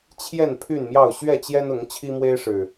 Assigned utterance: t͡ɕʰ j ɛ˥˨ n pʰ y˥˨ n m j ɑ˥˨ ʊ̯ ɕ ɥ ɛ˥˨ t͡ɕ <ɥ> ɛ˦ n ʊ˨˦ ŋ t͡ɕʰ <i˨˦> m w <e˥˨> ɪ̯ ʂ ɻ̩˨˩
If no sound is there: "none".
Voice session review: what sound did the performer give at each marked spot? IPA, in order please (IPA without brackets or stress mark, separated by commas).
j, i˦, e˦